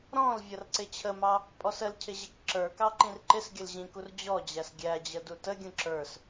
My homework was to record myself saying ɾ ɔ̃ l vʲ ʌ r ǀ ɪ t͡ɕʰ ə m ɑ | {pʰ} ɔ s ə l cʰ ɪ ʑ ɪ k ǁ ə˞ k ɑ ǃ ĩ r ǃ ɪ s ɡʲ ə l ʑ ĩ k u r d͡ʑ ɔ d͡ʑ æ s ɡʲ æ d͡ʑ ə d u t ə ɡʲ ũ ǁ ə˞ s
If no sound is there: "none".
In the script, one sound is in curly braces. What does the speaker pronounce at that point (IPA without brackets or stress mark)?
pʼ